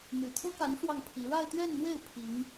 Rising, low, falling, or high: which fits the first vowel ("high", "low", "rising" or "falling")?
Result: low